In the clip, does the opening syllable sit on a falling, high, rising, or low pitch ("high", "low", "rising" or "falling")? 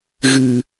low